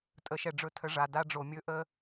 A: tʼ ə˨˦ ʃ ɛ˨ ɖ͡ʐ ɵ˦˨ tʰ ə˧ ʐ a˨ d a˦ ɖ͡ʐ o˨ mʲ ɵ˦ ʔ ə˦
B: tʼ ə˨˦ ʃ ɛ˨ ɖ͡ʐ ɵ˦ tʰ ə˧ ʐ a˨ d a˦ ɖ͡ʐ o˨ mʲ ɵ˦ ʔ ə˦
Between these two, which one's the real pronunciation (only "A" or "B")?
A